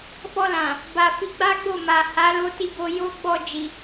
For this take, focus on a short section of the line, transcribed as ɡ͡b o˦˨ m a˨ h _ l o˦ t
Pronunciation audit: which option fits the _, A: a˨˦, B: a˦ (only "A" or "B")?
A